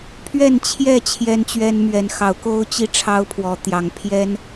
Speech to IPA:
pʰɥɛ˥˨nt͡ɕʰjɛ˥˨ t͡ɕʰjɛ˦nt͡ɕɥɛ˦nmɥɛ˨˦n xɑ˨˦ʊ̯ko˦ʊ̯t͡ɕi˥˨ ʈ͡ʂʰɑ˦ʊ̯pʰwɔ˨˦t̪jɑ˨˦ŋ pʰjɛ˦n

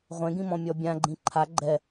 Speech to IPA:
ʁʷẽɡĩmɔ̃ mʲɔbʲãɡ͡ǃĩ ǃʰa ɡ͡ǃɛ

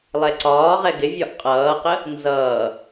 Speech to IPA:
lˠɛǀɒː ʁɛɡɪvʲɒʔ qʼʌːqə | nzʌː

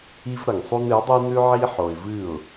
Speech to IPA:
i˦v ɾɐ˨ŋsˤu˦n ɨ˨˦dˤi˦nʉ˦ ʕi˦ ħo˨ɪ̯ vɨ˦˨ʊ̯

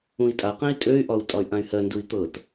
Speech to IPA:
ũi̯tʼaqɛ̃i̯ tʼøy̯ʔɒu̯ tʼɒy̯ʔãy̯hɜndui̯ t̪ɤt

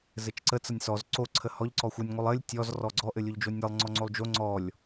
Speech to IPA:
zɘt͡ʃǀə t͡sənʲsɔz ǀo ǀʰəhɔʎ ǀɔxʷɘnʲ ŋʷəlˠɘlʲ tʲɔz rɔɡ͡ǀɔ ʔɘlʲoʎd͡ʒonʲɘlˠ ŋ͡ǀɔŋ͡ǀolˠd͡ʒo ŋ͡ǀɔlʲ

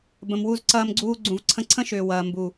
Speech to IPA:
bə̃˨mwu˧zǀɐː˧mɡ͡ǀuː˧ ɡ͡ǀũ˨vǀʰə̃˧ǀʰə̃˦ʃʏː˨ wɐː˨ mbu˨

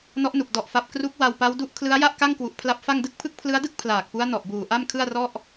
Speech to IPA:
nɔ˦˥ʔnu˨˩k̚ dɔ˨˩ʔfa˨˩p̚ kru˦˥k̚ wa˧wpa˦˥wdu˦˥ʔ kʰlɯ˦˥a̯ja˥˩ʔka˥˩ŋkwu˨˩ʔ pʰla˦˥p̚fa˥˩ŋdɯ˥˩k̚ pʰɯ˥˩k̚pʰlɯ˦˥a̯dɯ˥˩k̚ pʰlaː˨˩k̚pu˦˥a̯ nɔ˨˩ʔbuː˨˩ ʔa˥˩mkʰɯ˥˩a̯rɔ˥˩ʔ

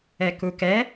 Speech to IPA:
ɛkukɛ

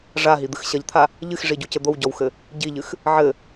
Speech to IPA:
ʐaɦid̪ɨx ɕɐʎt̪ʰa | ʎɨxʐiɟucɘ d̪owɟɔwxɘ | ɟiʎɨx | ʕɘ

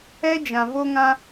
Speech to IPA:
ɛ˦ d͡ʒã˨vo˦ŋã˦

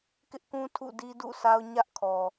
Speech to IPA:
kɪ˦ʔkũ˦ tʰṵ˦˨di˦ dṵ˦˨sʰa˦ʊ̯ ɲä˦ʔkʰɔ˨

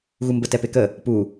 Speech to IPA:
ɣumbə tɛpekə | pu

